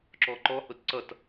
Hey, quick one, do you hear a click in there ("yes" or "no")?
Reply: yes